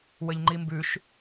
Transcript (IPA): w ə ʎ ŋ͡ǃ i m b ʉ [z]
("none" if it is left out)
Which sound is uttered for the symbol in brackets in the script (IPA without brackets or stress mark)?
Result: ʃ